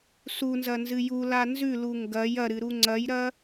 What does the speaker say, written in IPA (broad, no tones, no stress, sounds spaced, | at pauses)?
s u n z ɐ n z ɨ j u l a n z ʉ l u ŋ ɡ ɐ j ɐ ɾ ɨ ɾ u ŋ͡ǀ ɐ j ɾ ɐ